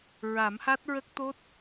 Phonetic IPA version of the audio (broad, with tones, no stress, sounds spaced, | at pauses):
ɹ a˨˩˦ m h a˦˥ t̚ ɹ ə˦˥ k̚ t̪ o˦˥ t̚